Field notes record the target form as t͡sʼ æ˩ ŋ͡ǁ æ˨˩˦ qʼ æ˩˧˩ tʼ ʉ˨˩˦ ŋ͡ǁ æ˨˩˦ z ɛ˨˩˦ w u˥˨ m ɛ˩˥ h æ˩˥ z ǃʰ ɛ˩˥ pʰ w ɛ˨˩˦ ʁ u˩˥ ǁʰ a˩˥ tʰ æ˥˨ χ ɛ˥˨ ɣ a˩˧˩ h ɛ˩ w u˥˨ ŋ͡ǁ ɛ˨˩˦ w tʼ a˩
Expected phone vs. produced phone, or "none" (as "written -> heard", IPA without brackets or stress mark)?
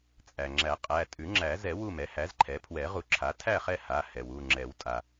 ɣ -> h